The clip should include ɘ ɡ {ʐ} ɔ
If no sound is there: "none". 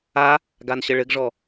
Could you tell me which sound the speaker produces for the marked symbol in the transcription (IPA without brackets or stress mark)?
ʐ